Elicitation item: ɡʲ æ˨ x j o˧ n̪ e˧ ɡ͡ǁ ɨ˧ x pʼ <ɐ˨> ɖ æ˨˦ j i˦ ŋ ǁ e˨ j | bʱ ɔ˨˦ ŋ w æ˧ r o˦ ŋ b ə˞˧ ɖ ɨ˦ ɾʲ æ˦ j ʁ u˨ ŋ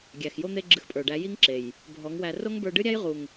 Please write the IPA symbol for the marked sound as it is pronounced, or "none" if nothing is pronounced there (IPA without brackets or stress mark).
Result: ə˞˨